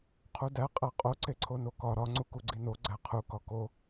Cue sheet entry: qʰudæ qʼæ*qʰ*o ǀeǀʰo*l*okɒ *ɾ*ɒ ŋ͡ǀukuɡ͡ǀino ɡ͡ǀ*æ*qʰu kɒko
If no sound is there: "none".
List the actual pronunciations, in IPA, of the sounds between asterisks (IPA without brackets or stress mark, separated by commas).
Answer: qʼ, n, ɾ, æ